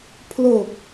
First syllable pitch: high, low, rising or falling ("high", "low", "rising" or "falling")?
low